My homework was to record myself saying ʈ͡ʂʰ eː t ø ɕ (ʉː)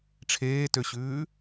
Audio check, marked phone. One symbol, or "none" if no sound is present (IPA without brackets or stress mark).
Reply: ʉː